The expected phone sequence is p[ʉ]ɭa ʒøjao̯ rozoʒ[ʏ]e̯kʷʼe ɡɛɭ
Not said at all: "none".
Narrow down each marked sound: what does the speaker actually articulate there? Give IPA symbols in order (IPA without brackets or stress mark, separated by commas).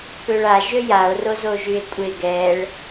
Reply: ø, y